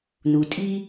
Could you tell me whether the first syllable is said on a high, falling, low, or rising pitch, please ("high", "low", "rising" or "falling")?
low